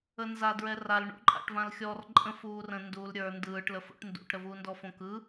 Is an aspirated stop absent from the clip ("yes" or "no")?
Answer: yes